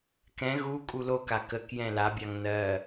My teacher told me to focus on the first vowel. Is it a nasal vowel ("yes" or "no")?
yes